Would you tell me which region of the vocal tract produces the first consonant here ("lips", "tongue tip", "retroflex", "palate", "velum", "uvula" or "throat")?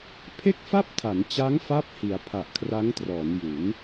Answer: lips